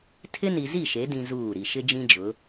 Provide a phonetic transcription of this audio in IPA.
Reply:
tʰ ɪ˦ n i˨ z i˦˨ ʃ e˨˦ d ĩ˦ z uː˦˨ ɾ i˨ ʃ ɪ˦ d͡ʒ ĩ˦ d͡ʒ ʊ˨˦

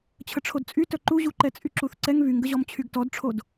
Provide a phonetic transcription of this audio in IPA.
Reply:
t͡ɕʰ ə ʈ͡ʂʰ o d t͡sʼ y t œ ǃ u ʑ u ǃ ɛ t͡sʼ y ǁ u θ ǀ ɛ ŋ β y ŋ ɡ ə ʑ ɔ m t͡ɕʰ y ɡ t ɔ d ʈ͡ʂʰ o d

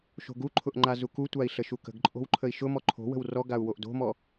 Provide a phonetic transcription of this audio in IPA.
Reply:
ʃ o̤ ɡ u ǃʰ ʊ ʔ ŋ͡ǃ a z u k u tʷ a i̯ ɬ ə ʃ u k ə̤ ɡ ǃʼ o̤ w ǃʰ ə i̯ ʃ ʊ m ɔ ǃʰ o̤ w ə̤ w r ɔ ɡ a u̯ w o ʔ d o̤ m ɔ

